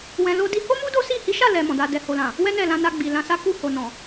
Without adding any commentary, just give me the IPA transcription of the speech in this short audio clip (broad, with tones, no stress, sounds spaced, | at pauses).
w ɛ̃˧ l o˦ d i˦ h o˦ m u˦ d o˦ s i˦˨ h i˨˦ ʃ a˦˨ l ɛ˧ m ɔ̃˨ d a˧ d ɛ˨ h o˨ l ã˨ | w ɛ˦ n ɛ˦˨ l ã˧ n a˧ ɡ͡b i˨ l ã˧ s a˦ k u˦˨ h o˨ n ɔ̃˨